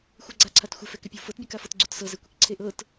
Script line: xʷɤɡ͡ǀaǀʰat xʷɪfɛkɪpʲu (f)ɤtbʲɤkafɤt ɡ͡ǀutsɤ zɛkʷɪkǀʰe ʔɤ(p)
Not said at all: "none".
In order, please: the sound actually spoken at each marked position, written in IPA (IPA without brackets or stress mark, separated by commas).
f, t